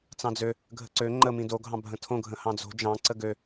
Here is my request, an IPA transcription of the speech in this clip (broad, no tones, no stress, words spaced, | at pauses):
t͡sɑ̃d͡zø | ɡʱə̤ǀø ŋ͡ǃəmĩ do ɡʱɑ̃bʱə̃tʰõɡʱə̃ hɑ̃d͡zo̤ d͡ʒɑ̃ǀə ɡø